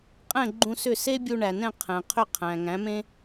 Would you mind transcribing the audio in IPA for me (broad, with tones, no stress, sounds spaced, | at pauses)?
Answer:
qʼ ɛ̃˥˩ ɡ͡ǃ ũ˧ s ʏ˥˩ s e˥ bʲ u˧ ɳ æ˩ n ɛ̃˥˩ qʰ ɛ̃˩ qʰ ʏ˥˩ qʰ æ̃˩ ŋ æ̃˩˥ m ẽ˥